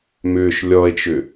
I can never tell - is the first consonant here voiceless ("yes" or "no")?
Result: no